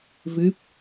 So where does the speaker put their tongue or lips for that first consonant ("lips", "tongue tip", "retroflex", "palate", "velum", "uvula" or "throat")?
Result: lips